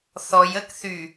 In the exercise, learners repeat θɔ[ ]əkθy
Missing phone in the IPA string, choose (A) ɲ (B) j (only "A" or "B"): B